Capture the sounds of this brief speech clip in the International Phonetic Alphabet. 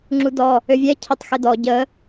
ŋ͡ǁudɔ | øvʲɛ cʰətˤ xedɔ ɟə

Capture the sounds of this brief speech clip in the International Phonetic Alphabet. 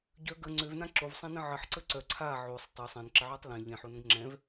ɟœ ɡə ŋ͡ǀøvnã ǁovsˤɛ̃nə̃ ʕəħǀə ǀœ ǀʰa ʕosˤ tˤɛ sˤɛ̃nǁəʕœtˤ lɛ̃ ʎɛ̃ħonə̃ɡ ŋ͡ǁɛ̃v

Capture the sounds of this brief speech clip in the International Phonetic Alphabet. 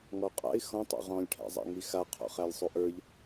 ŋɔqʼa̰ɪ̯ xɔ̃tˤɔ̰ ʁɔ̃lʲʈʰæ̰zˤa̰ ŋixa qʰɔ̰χælʲsˤuʔə˞ʎ

